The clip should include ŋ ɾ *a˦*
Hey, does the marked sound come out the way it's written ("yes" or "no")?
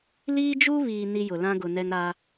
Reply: yes